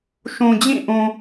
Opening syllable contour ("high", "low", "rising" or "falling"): low